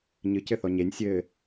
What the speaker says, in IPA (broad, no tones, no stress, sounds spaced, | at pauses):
ɲ ɨ c ɘ θ ɔ ɲ e nʲ sʲ ɘː